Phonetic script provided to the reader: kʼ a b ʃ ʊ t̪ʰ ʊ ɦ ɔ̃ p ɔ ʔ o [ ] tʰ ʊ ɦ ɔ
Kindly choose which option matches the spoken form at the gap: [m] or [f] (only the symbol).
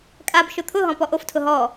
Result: f